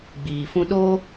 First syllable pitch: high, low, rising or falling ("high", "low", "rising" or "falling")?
low